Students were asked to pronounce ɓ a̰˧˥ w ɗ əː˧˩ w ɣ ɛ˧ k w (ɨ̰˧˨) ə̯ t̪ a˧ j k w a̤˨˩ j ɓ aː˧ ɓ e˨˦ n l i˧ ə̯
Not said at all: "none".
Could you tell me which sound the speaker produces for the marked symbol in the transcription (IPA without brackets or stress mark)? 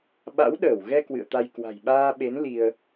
ɨ̰˧˨